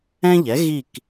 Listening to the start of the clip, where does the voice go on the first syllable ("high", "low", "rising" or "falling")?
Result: high